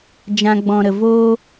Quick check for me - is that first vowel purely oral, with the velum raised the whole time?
no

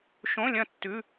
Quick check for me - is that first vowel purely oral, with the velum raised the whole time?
no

